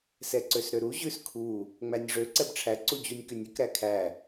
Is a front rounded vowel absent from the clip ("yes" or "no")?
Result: no